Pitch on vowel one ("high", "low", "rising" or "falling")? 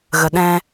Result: low